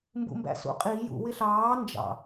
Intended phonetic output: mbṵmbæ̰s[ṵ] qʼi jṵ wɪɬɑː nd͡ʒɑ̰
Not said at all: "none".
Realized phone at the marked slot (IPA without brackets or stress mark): ṵ